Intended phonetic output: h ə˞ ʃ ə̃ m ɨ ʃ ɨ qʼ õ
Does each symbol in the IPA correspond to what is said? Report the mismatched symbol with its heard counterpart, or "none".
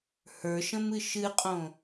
none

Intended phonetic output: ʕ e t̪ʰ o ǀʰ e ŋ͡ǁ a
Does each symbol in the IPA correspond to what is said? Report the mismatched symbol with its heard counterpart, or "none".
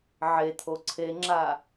none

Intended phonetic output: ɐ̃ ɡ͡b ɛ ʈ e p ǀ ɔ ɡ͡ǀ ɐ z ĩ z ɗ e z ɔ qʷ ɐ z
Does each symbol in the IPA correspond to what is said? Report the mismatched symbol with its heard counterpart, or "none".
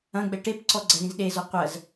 none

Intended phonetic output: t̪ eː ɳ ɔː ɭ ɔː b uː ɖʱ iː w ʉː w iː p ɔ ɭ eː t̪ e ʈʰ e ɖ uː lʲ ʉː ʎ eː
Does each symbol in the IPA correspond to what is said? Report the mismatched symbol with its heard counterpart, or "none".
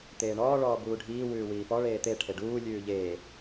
none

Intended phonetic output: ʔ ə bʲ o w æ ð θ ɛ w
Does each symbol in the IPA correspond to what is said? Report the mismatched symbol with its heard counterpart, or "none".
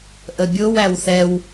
ð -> w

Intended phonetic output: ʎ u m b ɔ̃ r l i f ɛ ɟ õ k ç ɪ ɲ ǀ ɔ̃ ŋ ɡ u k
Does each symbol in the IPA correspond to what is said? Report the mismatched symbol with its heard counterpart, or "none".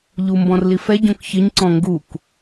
none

